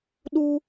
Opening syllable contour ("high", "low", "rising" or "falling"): high